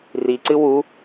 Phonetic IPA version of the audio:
r i ǀ ɨ w u

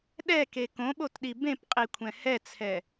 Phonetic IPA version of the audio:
ɗ ɛ k e k õ ɓ o t ɗ i b ẽ p qʼ i kʷʰ ɛ̃ h ɛ t͡sʰ ɛ

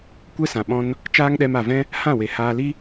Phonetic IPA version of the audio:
kʷ ɛ˦ s ã˨ ɓ ɔ̃˧ n | t͡ʃ aː˦ ŋ ɗ ɛ˧ m a˨ v ɛ̃˦ | h ã˦˨ w e˨ h aː˧ l i˦

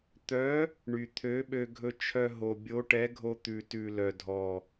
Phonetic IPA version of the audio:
t̪ œ˨˥ | ɳ y˨˩ t̪ʰ ø˨˥ ɓ ø˧ ɡʱ ɵ˧ t͡ʃʰ œ˧ ɦ o˨˩ bʲ o˨˥ ʈ ɛ˨˥ ɡʱ o˧ t̪ ʉ˨˩ t ʉ˨˩ l œ˨˩ dʱ ɔ˨˩

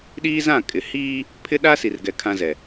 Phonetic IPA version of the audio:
ɗ iː˦ z ã˦˨ kʼ ɪ˨ h iː˦ | pʰ ɪ˦ ɗ a˦ s i˨ r ɡ ɛ˨ kʰ ã˦ z ɛ˨

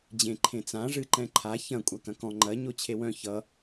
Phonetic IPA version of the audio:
d͡ʑ ẽ ǃʰ ẽ t͡s ã ʐ ɨ ǃ ɛ̃ ǃʰ a ç ɐ̃ kʷʼ a k ɐ̃ k ɔ̃ ŋ͡ǃ ɐ ɲ o t͡ɕʰ e w œ̃ ç ʌ

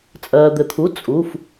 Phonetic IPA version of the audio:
t͡sʼ ɜː˩ d̪ ɘ˩ t̪ʰ u˩˧˩ t͡sʼ u˩˧˩ f

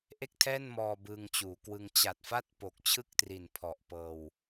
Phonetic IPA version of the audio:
ʔ e˥˩ k̚ tʰ ɛː˥˩ n m ɔː˧ b ɯː˧ ŋ t͡ɕ uː˩˦ k w ɯ˧ ŋ t͡ɕ a˨˩ t̚ f a˥˩ t̚ p o˨˩ k̚ t͡ɕʰ ɯ˥˩ k̚ t r i˨˩ n pʰ ɔ˨˩ ʔ p ɤː˧ w

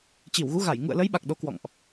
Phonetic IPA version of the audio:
t͡ɕ i˧˩ w ɣ u˨˦ ɣ a˧˩ j ŋ ṵ˧˨ ə̯ l ə˨˦ j ɓ a˨˩ k̚ ɗ o˨˦ k w ɔ̰˧˨ ŋ ʔ

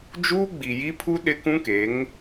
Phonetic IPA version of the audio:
d͡ʒ uː˦ ɡ͡b i˨ j i˦ pʰ u˦ ɗ ɪ˦ k ũ˦ k e˨˦ ŋ

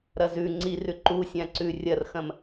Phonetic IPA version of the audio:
ɾ ɐ z ʉ ŋ͡ǀ i r ʉ ǃ u sʲ ã ǀ ʉ rʲ ɐ r x ɐ̃ m

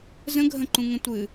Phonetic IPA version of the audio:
z ə̃ ɡʱ ə̃ ǃ ũ ŋ ə̃ tʷ ɨ

